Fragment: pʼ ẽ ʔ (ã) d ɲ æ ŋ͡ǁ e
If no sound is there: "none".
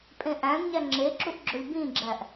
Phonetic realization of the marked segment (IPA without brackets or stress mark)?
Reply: æ̃